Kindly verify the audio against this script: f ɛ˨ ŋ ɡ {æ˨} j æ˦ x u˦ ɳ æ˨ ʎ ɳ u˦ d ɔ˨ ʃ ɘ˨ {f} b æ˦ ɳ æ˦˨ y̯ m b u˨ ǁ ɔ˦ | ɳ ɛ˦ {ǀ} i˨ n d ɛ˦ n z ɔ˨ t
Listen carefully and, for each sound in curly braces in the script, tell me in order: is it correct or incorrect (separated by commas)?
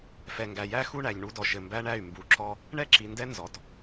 correct, incorrect, incorrect